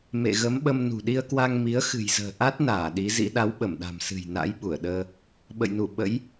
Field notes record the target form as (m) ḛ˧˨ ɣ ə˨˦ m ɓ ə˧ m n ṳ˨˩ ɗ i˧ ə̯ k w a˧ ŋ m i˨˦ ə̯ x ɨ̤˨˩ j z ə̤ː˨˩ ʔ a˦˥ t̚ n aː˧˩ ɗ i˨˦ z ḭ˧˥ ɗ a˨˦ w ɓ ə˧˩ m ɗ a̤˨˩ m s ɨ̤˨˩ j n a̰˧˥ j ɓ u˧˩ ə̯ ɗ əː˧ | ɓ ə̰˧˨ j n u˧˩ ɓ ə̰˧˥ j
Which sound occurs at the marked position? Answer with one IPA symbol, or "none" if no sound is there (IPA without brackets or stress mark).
m